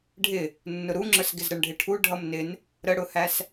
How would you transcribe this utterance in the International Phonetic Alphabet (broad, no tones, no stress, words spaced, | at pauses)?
ɖʱɪ | nːʊɾuŋ͡ǁə˞s ɡɪzɾəɳɖʱɪʈʰu ɖʱʌmnɪn | ɾəɽʊhæs